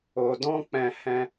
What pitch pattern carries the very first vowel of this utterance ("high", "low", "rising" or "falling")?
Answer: low